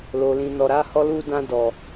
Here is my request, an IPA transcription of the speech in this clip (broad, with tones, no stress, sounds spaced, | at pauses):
l o˨ l ĩ˨ n ɔ˨ ɾ a˨˦ h ɔ˧ l u˧ d ã˧ d ɔ˨